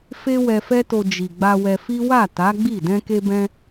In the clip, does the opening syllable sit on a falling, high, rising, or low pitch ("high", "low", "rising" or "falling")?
high